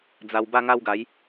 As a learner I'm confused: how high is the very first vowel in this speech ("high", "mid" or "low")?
low